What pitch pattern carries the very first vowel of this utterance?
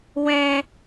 high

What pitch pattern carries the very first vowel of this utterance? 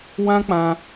high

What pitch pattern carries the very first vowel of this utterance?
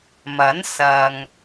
rising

